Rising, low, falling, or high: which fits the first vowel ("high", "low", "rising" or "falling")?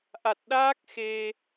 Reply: low